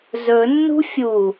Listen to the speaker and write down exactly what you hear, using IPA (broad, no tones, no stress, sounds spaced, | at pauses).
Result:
z ɵ nː ṳ fʲ u